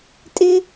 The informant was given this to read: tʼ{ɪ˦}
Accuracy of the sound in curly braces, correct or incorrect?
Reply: correct